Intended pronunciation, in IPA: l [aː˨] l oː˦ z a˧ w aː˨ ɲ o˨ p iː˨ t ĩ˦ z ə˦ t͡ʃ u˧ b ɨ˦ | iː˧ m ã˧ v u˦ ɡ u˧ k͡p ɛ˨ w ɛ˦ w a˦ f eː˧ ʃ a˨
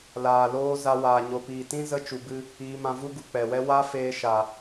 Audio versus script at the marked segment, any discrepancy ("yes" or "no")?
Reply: no